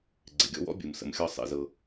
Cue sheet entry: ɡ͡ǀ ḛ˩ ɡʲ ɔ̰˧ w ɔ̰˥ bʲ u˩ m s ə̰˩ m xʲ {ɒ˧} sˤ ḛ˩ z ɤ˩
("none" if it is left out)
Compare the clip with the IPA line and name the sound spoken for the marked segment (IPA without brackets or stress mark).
ɒ˧